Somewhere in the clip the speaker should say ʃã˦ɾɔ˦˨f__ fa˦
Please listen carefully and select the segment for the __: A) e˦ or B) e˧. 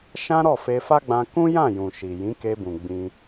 B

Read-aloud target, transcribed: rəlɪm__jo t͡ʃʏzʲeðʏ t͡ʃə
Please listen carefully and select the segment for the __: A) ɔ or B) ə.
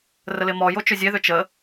A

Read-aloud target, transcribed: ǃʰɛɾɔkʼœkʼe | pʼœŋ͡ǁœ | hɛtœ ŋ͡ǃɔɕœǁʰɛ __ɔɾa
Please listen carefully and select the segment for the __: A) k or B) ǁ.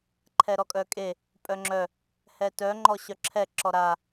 B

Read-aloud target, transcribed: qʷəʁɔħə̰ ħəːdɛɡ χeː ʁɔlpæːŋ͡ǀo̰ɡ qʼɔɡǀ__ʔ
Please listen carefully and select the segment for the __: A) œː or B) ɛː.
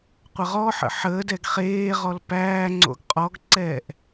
B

